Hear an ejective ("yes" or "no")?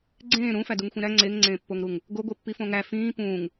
no